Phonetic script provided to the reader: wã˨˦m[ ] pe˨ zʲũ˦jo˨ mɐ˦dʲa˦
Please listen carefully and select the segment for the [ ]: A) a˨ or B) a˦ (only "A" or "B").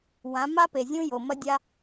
B